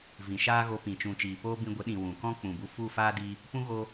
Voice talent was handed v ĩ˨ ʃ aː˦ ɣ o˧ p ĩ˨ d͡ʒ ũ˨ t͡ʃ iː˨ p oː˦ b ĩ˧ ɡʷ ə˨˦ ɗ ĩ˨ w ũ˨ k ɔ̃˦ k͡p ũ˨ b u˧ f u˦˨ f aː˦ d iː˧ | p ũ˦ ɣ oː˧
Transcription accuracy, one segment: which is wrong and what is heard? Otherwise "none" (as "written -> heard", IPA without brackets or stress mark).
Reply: d͡ʒ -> t͡ʃ